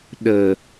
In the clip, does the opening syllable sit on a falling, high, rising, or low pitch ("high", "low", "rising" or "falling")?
low